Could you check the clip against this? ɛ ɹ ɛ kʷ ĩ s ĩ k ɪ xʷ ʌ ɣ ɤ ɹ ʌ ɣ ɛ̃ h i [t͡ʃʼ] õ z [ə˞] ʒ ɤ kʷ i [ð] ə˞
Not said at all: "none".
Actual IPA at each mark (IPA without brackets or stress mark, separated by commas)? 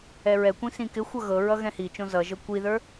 t͡ʃ, ʌ, ð